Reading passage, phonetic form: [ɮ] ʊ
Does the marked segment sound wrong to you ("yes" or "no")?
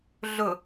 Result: no